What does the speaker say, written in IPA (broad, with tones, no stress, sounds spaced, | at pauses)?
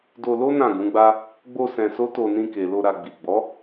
d o˧ l o˦ n ã˦˨ ɡ ũ˨˦ ɡ͡b a˦ | ɡ͡b o˧ s ɛ̃˧ s o˦ t o˧ n ĩ˧ k e˨ l o˧ ɾ a˧ ɡ͡b i˨ ɡ͡b ɔ˨˦